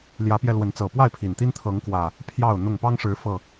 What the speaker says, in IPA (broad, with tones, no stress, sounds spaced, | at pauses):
l j ä˨˦ p j ɛ˧ l w ə˨˦ n t͡s ɤ˨˩ p w a˥˨ ɪ̯ pʰ i˨˩ n t̪ i˦ n t̪ʰ ɤ˨˦ ŋ k w ä˨˩ | pʰ j ɑ˥˨ ʊ̯ n̪ ʊ˥˨ ŋ p ɑ˦ ŋ ʂ ɻ̩˨˦ f ɤ˨˩